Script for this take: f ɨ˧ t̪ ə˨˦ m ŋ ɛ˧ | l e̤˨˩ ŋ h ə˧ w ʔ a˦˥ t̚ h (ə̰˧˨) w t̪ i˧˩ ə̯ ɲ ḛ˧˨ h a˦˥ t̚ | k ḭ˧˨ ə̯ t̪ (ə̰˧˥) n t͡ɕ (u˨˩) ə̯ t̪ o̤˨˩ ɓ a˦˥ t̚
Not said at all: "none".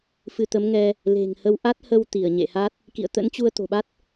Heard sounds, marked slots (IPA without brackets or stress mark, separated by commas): ə˧, ə̰˧˥, u˧